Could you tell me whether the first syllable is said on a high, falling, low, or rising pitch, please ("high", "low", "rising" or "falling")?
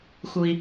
low